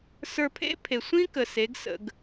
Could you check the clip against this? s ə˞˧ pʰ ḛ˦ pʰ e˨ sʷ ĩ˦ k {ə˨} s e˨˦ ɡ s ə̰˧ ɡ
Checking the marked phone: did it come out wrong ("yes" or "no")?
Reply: no